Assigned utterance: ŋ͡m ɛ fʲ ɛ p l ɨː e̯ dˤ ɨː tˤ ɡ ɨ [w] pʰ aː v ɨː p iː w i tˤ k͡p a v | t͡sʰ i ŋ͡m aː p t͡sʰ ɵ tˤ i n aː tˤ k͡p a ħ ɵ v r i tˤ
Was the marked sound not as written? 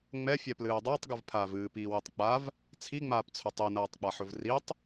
yes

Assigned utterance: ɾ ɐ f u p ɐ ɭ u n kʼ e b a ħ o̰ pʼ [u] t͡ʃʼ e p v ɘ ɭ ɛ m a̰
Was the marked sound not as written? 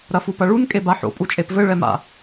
no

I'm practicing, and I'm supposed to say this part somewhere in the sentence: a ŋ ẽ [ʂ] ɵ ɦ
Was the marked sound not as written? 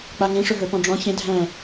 no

